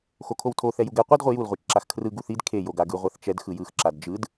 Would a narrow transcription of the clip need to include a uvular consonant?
yes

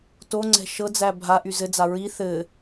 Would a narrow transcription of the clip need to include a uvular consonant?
no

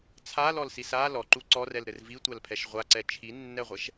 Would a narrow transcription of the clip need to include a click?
yes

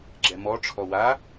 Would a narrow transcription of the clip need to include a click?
yes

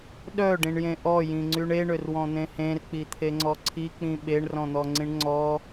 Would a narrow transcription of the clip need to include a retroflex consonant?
yes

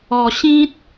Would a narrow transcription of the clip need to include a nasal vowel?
yes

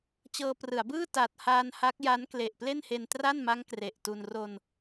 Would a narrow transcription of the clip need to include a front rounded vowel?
no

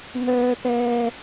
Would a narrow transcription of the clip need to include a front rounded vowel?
yes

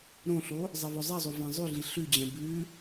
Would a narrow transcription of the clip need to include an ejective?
no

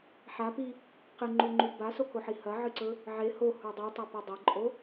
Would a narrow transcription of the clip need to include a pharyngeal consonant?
yes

